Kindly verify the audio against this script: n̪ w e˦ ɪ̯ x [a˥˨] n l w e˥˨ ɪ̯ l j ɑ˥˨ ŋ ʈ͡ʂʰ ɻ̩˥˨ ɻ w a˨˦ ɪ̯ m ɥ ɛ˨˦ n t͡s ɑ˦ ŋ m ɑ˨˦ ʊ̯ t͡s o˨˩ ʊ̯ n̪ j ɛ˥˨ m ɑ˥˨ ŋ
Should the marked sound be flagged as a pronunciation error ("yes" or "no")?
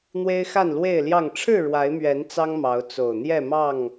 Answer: no